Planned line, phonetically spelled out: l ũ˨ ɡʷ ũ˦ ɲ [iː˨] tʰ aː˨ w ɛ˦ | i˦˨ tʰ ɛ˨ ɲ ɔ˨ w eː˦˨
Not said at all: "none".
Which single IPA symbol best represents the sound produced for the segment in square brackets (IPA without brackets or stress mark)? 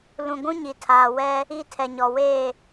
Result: i˨